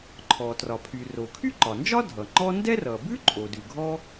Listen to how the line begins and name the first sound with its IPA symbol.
ǃʰ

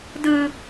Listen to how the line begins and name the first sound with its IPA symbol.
d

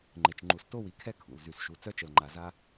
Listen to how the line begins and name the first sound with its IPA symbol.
ŋ͡ǃ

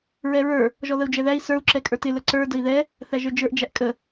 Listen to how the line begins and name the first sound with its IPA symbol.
ɹ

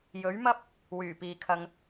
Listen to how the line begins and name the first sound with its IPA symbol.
j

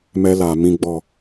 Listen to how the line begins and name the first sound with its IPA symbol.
m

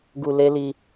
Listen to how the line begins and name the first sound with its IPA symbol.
ɡ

